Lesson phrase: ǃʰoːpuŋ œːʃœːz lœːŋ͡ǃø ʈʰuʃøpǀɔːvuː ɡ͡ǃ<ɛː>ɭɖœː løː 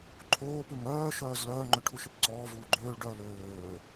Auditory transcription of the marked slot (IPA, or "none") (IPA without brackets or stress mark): øː